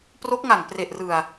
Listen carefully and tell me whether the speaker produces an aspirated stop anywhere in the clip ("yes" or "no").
no